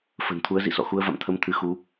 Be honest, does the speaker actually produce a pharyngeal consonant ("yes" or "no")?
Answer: no